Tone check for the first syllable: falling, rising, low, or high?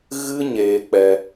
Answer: high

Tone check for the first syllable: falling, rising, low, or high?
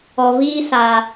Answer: low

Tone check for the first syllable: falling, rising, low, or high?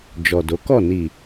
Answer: low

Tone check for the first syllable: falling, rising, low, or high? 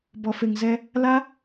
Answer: low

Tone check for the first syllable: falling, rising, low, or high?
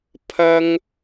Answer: high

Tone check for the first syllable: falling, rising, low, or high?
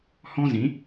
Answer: high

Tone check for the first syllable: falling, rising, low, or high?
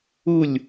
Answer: falling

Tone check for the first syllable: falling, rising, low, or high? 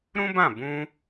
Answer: high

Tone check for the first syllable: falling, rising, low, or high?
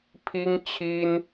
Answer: high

